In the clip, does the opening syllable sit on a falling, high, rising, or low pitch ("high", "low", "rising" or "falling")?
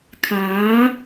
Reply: rising